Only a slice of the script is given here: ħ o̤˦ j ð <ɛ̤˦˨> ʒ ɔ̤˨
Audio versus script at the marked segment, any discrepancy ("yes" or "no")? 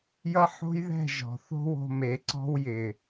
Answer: no